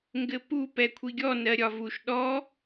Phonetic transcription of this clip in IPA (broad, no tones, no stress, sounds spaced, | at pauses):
ŋ ɡ ɘ p u p ɛ kʷʰ i ɡʲ ɔ n ɜ ɾʲ ɒ v u ʃ ɗ ɔ